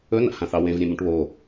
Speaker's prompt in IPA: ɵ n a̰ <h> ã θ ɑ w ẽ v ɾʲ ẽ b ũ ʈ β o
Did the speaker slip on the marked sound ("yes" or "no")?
no